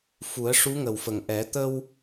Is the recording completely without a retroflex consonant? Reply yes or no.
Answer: no